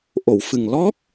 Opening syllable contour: low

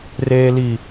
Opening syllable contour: low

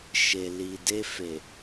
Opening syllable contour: low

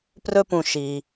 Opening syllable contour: high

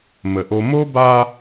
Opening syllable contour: low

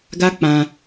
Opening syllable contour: high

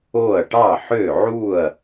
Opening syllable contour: falling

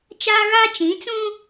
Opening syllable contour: high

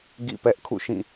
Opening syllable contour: falling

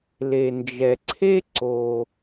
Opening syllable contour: low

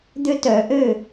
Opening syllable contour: high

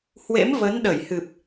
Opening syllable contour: rising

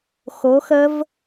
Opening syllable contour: rising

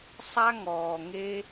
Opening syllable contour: high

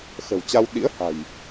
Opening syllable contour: low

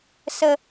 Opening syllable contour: low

